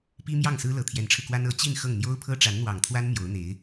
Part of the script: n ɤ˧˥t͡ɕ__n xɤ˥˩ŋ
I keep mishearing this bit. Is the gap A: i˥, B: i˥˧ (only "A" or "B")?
B